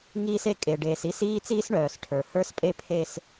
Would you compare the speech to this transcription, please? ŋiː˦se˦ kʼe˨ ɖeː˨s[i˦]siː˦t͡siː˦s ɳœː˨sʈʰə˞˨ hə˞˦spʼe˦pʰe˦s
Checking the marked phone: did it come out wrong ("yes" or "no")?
no